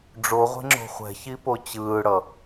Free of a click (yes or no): no